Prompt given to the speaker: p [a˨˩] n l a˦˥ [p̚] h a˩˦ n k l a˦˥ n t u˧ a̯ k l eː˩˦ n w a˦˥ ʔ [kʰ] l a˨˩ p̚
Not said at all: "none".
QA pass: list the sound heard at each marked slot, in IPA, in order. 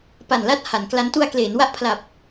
a˨˩, t̚, pʰ

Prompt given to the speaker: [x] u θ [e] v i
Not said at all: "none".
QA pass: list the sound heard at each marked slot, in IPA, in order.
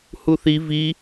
h, i

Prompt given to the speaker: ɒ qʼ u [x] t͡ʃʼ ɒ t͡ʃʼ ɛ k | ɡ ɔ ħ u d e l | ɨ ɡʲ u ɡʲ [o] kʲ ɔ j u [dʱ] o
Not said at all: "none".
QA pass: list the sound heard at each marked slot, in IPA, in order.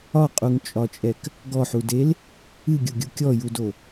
ŋ, u, d

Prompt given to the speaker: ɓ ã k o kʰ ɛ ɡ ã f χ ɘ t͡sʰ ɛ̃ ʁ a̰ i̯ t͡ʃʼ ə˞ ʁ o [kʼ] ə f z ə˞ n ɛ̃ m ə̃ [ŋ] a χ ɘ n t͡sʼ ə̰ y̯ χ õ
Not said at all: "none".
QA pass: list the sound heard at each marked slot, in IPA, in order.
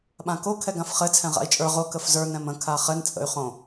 k, kʰ

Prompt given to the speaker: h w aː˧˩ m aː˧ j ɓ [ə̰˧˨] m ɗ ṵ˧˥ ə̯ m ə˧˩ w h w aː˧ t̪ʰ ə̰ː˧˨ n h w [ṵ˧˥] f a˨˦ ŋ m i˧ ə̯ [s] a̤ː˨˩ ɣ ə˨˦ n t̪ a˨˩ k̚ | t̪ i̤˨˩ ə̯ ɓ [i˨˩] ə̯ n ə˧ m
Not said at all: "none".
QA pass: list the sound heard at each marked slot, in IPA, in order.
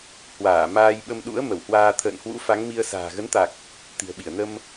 ə˧, ṵ˧˥, s, i˧˩

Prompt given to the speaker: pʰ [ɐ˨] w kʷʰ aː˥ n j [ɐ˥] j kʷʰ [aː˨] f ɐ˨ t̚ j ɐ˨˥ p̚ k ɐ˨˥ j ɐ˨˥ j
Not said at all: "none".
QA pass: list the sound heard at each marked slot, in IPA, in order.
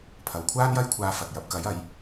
ɐ˨, ɐ˥, aː˧

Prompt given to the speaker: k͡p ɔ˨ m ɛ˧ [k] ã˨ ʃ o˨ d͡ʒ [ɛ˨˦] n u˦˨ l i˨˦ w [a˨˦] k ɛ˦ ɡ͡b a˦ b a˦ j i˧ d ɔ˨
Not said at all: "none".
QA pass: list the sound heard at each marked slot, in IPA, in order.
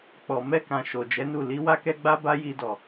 k, ɛ˨˦, a˦

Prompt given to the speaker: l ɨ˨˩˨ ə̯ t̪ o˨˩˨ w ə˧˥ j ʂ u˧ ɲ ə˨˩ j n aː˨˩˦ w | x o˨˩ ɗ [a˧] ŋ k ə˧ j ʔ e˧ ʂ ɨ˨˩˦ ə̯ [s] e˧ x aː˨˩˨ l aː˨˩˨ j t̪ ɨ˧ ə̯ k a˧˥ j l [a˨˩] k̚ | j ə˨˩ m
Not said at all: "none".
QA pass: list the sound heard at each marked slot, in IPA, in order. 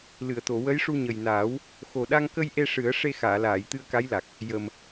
a˧, ʂ, a˨˩

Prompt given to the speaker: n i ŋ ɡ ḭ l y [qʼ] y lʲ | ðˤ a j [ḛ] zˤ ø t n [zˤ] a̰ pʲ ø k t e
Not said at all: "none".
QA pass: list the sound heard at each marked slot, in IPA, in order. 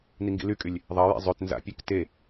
kʼ, ḛ, z

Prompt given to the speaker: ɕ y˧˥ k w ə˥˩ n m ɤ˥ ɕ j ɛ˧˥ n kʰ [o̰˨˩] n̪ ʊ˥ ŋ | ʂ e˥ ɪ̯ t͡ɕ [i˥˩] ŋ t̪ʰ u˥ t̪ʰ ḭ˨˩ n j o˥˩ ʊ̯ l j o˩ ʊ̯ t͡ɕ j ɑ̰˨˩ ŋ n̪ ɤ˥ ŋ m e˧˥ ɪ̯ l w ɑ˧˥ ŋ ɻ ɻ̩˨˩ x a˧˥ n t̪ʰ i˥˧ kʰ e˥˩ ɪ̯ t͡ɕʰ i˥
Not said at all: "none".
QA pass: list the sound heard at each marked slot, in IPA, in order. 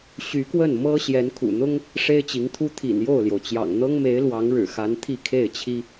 ṵ˨˩, i˧˥

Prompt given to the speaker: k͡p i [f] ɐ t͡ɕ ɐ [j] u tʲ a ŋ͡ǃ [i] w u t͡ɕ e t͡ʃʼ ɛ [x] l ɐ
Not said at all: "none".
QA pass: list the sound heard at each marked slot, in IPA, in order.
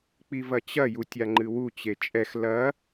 v, j, ɨ, x

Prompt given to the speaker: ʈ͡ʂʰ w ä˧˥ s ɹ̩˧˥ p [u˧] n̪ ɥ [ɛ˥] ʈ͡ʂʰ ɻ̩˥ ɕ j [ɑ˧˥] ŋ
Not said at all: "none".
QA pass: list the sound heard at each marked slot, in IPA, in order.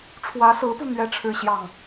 u˧, ɛ˥, ɑ˥˩

